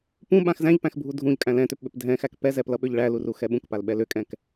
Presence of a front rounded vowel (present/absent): present